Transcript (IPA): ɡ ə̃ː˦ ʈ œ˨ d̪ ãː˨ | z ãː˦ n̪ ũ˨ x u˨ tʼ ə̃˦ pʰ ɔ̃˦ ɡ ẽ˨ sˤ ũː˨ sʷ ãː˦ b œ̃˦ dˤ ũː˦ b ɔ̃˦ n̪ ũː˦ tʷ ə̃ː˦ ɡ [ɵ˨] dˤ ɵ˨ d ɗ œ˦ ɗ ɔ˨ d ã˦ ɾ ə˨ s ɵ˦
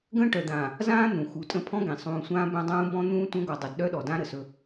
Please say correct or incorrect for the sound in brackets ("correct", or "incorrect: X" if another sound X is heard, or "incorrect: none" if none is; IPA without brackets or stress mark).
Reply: incorrect: ɔ˨